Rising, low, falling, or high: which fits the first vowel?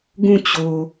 falling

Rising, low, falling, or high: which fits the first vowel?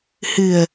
low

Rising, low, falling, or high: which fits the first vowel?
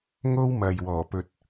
high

